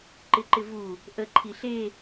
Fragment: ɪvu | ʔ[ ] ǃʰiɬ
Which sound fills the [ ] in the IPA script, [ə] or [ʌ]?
ə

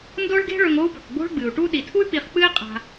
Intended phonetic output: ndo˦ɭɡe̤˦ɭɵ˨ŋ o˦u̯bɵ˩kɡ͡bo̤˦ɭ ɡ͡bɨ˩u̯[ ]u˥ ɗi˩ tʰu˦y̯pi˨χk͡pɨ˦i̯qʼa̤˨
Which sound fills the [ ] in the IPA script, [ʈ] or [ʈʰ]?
ʈ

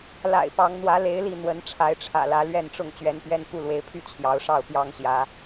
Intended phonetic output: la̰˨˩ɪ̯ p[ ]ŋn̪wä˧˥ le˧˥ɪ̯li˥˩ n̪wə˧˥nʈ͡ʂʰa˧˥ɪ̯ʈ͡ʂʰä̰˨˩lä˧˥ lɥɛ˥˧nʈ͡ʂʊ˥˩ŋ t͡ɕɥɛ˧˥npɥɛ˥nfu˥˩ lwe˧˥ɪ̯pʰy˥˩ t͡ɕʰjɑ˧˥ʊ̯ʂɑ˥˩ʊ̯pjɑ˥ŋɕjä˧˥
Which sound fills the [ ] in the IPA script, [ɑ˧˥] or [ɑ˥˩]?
ɑ˧˥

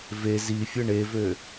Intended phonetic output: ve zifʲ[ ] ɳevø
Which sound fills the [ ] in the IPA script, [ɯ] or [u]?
ɯ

